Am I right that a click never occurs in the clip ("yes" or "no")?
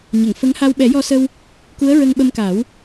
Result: yes